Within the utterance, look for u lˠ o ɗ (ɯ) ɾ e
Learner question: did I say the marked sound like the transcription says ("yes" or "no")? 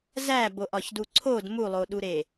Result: no